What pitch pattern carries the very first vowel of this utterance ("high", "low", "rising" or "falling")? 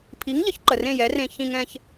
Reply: rising